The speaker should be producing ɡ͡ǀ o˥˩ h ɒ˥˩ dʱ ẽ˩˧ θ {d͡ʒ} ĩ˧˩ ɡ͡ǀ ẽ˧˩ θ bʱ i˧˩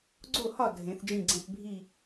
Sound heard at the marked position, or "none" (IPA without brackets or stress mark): d͡ʒ